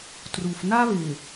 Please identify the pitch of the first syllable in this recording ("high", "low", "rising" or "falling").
low